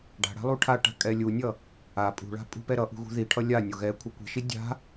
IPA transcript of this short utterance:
ɖ a̤ ɽ a̤ lˠ u ʈʰ a ʈ a̤ kʼ ɛ lʲ u nʲ ʌ | a pʼ ṳ ɭ a̤ pʼ ṳ p ɛ ɾ ʌ ʔ ṳ ɣ ṳ ð i ʈʰ ʌ lʲ a nʲ o ɣ ɛ kʷʰ ɯ kʷ i̤ ʃ i dʲ a̤

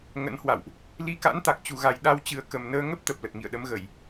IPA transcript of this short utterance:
ŋ ə̰˧˥ n h w a̰˧˨ w ʔ | l i˧ k a̰˧˥ n t̪ a˨˩ k̚ t͡ɕ u˨˩ ɣ a˨˩ j ɗ a˧ w t͡ɕ ɨ˨˩ ə̯ k ə˨˩ m n əː˧ ŋ ə˦˥ p̚ t̪ ə˨˩ p̚ l ə˨˩ t̚ ŋ ḭ˧˨ ə̯ ɗ ə˨˦ m ɣ ə˧˩˨ j

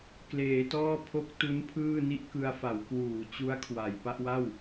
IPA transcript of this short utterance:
k l eː˩˦ t ɔː˥˩ pʰ o˦˥ k̚ t u˦˥ n pʰ ɯː˥˩ n i˥˩ ʔ k ɯ˧ a̯ f a˩˦ w k w uː˩˦ t͡ɕ u˦˥ a̯ kʰ w a˨˩ j p a˥˩ ʔ w a˥˩ w

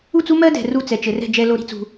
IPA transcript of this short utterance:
u˦˨ t͡s u˦ m ɜ˦ d ɛ̤˨ r u˦˨ t͡s ɛ˨ t͡ʃ ɘ˨ r ɛ̤˦˨ d͡ʒ ɛ˦ l o˦ ɾ i̤˦ t͡s ṳ˦

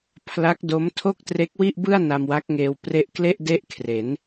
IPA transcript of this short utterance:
pʰ l a˦˥ k̚ d o˦˥ m tʰ o˥˩ k̚ t r e˦˥ k̚ w i˥˩ ʔ b ɯ˥˩ a̯ n a˧ m w a˦˥ k̚ ŋ eː˧ w p r e˦˥ ʔ k l e˥˩ ʔ d e˥˩ ʔ kʰ r e˩˦ n

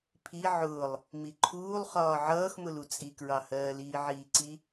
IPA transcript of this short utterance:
pʰ i ʕ ʊː lˠ | m i ǃʰ uː lˠ χ ɒː ʕ ʌː x m ʊ l u t͡sʼ i k ɹ ɑ h ɜː l iː ʕ iː ǀ i

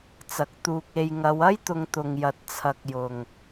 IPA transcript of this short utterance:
t͡s ɐ˨ k̚ t̪ uː˧ k̚ e˧ j ŋ ɐ˨˧ w ɐ˥ j t̪ ʊ˧ ŋ t̪ ʊ˧ ŋ j ɐ˧ t̚ t͡sʰ ɐ˧ k̚ j ʊ˨ ŋ

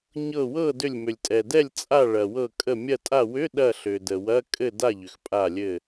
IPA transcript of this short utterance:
ɲ ɤ˧˩ w ɤ˥˨ d ʏ˧˩ lʲ m ʏ˩ lʲ tʼ ɛ˩ d ɛ˥˨ lʲ t͡sʼ a˥˨ ɭ ɐ˩ w ɤ˧˩ kʼ ə˧˩ mʲ ɐ˧˩ tʼ a˧˩ w ʏ˧˥˧ ɗ ɐ˥˨ ɬ ʏ˩ d ə˩ w ɐ˧˥˧ kʼ ɘ˥˨ d a˥˨ ʎ ʏ˩ x pʼ a˧˩ lʲ ɘ˧˩

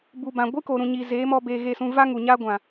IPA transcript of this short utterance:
b u˨ b ã˨ ɡʷ ɨ˦ k o˨ ɾ ũ˨ ɲ iː˨ z eː˨˦ m ɔ˧ b eː˧ ɣ e˦˨ s ũ˧ v a˦ ŋ u˨ ɲ a˦ ɡʷ ã˨

